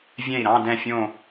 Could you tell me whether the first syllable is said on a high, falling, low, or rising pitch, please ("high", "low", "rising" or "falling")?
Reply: falling